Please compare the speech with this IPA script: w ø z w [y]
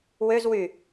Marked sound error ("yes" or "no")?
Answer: no